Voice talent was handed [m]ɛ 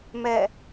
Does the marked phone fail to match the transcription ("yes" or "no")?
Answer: no